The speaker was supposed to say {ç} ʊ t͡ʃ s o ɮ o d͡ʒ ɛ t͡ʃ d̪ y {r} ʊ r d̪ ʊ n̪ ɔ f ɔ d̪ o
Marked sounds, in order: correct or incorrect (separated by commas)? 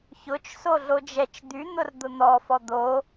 correct, incorrect